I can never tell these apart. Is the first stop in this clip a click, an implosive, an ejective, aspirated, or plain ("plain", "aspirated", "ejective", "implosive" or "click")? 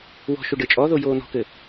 plain